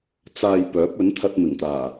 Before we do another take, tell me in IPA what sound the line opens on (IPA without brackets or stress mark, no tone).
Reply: t͡s